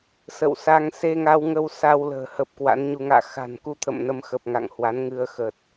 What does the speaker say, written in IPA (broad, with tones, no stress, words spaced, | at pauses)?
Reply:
sə̰˧˨wsa˧ŋ se˧ŋa˧wŋə˧w sa˧wlə̤ː˨˩ hə˦˥p̚kwa̰˧˥nɲu˧ ŋa̰ː˧˨xa̤˨˩nku˧t̪ʰə̰˧˨m nə˧mxə˨˩p̚ ŋa̰˧˨ŋhwa˨˦nŋɨ˧ə̯ xə˨˩t̚